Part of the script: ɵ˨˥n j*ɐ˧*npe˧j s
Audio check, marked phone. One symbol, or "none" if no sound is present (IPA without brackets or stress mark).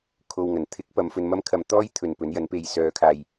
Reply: ɐ˨˥